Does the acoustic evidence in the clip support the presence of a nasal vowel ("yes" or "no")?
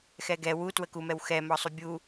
no